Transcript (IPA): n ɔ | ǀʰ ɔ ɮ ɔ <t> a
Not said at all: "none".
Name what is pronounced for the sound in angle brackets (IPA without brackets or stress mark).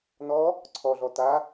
t